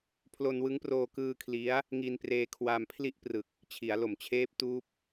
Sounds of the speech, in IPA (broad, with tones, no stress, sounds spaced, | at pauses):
pʰ l o˧ n w ɯ˦˥ ŋ p r oː˧ k ɯː˧ kʰ l i˦˥ a̯ | ŋ i˧ n p r eː˧ kʰ w a˧ m pʰ l i˥˩ ʔ p r ɯ˨˩ k̚ | t͡ɕʰ i˩˦ a̯ l o˨˩ m t͡ɕʰ eː˦˥ p̚ t uː˦˥ p̚